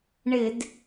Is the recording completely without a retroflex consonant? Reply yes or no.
no